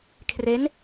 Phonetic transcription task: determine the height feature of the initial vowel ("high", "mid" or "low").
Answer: mid